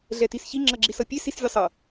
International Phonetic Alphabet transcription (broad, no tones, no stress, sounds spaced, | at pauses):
ɮ ɛ t i s ç i ŋ͡ǁ ʌ ɡ͡ǁ i s ʌ pʲ e s i s vʲ e sˤ ʌ